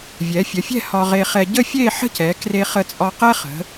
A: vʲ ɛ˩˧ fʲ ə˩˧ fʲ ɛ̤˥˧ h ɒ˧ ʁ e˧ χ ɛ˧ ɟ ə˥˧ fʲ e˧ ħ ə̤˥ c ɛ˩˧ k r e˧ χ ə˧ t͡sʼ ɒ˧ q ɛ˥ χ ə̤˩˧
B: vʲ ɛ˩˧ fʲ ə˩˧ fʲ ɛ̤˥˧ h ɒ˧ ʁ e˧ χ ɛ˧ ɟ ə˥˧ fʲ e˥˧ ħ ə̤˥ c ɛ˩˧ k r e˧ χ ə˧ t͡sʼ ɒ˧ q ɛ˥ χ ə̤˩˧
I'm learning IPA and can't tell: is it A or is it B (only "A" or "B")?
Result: B